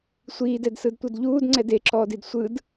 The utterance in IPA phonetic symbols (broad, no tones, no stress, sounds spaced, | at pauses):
sʷ iː d ɛ d s ɯ d tʷ ɤ d ʎ uː d ŋ͡ǀ ɛ d e ǁ ɔː d i d sʷ ɯ d